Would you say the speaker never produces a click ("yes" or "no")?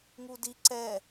no